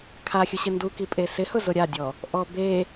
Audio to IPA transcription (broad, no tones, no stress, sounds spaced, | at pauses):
kʰ a xʲ ʊ ɕ ɪ n d u k i pʼ e s ɪ h ʊ z ʊ ɾʲ a dʲ ɔ | ʔ ɔ b e